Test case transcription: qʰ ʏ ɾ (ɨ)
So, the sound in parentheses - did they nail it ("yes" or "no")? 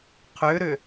no